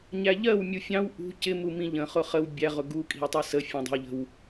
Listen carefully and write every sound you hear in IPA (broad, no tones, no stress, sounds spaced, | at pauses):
ɲ æ ʎ ɜ w mʲ u fʲ ɑ̃ w ʔ ṳ c ɪ m u m ĩ ʎ ə̃ χ ʊ χ ə w bʲ æ ʁ ʊ ɡ u kʼ i̤ w tˤ ɜ s ə fʲ ɛ̃ dˤ ə̤ w ʎ ə̤ w